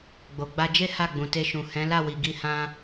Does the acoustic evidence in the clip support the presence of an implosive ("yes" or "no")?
no